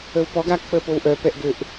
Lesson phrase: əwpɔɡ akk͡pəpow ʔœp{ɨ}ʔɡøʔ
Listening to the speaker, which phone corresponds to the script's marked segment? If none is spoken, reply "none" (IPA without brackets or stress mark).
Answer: ɛ